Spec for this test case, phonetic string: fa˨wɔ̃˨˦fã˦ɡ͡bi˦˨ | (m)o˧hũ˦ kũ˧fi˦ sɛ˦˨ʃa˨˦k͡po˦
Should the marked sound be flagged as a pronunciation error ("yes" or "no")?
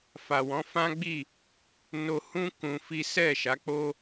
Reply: yes